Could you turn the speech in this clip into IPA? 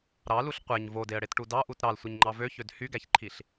ɾ ɑ l u ɬ qʷ e ɲ v o d e ə̯ ɽ e t ʈ u d ɑ ʔ u t ɾ ɑ l sʷ ɯ ɲ ŋ͡ǃ ɑ v ø ç ø d h y ɡ æ ç ǃʰ i ɬ

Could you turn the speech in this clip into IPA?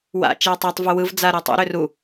w a̰ t͡ʃ e u̯ tˤ e tˤ v u w ɯ v d͡z a ɾ ɯ tˤ ṵ ɾ ʏ r u

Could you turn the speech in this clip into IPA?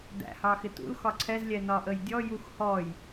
d æ̰ h ɑ x ɪ t ṵ l x ɒ ǀʰ ɛ z lʲ ɛ n ɒ ʔ ə j dʲ ɔ j u x h ɔ j

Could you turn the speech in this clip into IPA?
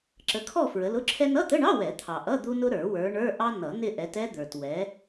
ǁ ə˨˦ kʰ ɔ˦˨ f ɹ ə˨˦ l ʊ˧˥˧ ǁʰ ɛ˥ n ʌ˧˥˧ t̪ ə˧˥˧ ɳ ɑ˧˥˧ w ɛ˨˩˦ t̪ʰ ɑ˨ ʔ ʌ˧˥˧ d̪ u˥ n ʊ˥ ɾ ə˞˨˩˦ w ə˞˨˦ ɳ ə˞˧˥˧ ʔ ɑ˥ n ʌ˨˩˦ n ɪ˦˨ ʔ ɛ˨˦ t ɛ˥ d̪ ə˞˨ t w ɛ˨˦

